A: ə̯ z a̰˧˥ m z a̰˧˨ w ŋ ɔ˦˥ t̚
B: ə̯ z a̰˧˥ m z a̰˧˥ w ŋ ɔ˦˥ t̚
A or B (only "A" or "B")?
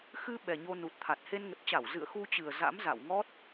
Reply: A